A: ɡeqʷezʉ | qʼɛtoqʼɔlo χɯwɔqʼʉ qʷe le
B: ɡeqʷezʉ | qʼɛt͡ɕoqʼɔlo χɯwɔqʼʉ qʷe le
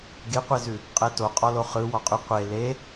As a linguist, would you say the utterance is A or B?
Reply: A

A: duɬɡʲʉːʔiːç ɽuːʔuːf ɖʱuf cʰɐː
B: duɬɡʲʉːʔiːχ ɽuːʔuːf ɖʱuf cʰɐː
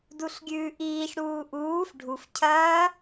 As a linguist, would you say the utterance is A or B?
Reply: A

